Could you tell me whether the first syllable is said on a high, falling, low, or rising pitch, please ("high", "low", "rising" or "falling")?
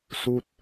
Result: falling